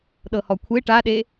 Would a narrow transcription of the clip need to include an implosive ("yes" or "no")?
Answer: yes